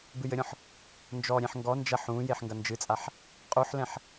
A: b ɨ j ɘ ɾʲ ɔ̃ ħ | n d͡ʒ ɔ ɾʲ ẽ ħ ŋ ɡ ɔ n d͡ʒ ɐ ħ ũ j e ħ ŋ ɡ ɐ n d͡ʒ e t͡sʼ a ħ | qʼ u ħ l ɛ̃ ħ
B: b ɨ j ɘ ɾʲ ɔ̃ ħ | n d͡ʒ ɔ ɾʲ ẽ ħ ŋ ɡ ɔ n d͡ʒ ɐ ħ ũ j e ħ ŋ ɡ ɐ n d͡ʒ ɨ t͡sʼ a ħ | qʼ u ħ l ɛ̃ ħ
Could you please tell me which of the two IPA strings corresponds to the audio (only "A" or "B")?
B